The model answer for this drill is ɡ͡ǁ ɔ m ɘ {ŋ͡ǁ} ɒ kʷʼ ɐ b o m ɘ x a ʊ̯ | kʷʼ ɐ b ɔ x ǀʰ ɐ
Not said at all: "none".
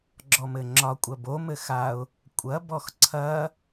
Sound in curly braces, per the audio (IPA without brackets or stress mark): ŋ͡ǁ